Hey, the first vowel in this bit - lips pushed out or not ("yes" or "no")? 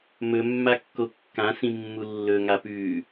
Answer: yes